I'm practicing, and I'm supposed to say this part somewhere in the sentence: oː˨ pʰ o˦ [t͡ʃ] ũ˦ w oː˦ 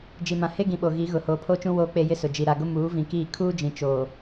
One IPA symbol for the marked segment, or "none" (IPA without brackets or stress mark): t͡ʃ